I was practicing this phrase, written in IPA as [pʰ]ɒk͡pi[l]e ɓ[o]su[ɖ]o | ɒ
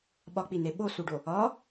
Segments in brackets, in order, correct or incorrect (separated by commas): incorrect, incorrect, correct, correct